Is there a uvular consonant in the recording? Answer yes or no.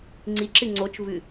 no